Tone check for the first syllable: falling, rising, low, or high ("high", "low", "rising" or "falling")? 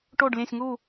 falling